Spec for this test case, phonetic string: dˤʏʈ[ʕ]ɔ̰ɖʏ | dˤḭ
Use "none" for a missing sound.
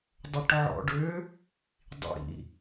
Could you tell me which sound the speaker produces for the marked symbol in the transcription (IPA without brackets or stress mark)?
ʕ